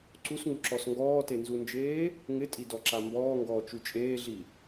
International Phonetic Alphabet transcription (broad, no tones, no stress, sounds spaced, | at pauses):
ǀ u s ŋ u ǁ ɔ s ŋ ɡ ɔː t e n z u n d͡ʒ eː | ŋ ɪ tʼ i d ɔ ǁ a m b ɔː ŋ ɡ ɔː t͡ʃ u t͡ʃʼ eː ɮ i